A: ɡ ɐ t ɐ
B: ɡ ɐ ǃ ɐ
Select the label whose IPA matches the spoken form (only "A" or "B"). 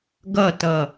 A